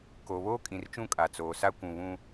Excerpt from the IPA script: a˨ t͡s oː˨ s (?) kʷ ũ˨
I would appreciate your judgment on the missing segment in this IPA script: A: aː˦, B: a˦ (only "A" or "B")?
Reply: B